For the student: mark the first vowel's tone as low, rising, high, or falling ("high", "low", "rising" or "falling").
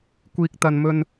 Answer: high